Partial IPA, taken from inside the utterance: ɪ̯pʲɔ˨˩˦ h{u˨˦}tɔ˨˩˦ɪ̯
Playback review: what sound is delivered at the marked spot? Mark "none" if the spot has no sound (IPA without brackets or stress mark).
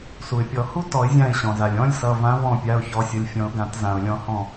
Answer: u˦˥